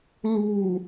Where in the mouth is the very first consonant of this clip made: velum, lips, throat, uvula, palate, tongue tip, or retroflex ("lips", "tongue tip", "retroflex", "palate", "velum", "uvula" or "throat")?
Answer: tongue tip